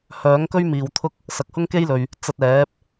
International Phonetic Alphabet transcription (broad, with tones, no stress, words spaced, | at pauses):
hœː˨˥ŋkɵ˥ɥ miː˨w t̪ʰʊ˥k̚ | sɐ˨k̚hʊ˥ŋke˥jlɵ˨ɥ | t͡sɐ˧t̚ɛː˨˥p̚